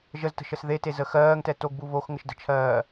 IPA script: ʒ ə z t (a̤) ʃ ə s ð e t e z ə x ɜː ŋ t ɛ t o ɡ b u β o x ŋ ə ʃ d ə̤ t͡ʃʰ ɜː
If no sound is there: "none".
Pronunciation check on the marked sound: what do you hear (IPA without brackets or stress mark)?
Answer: ə̤